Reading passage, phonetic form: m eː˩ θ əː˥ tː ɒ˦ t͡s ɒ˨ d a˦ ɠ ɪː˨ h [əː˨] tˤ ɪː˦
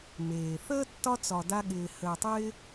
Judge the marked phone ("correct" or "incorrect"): correct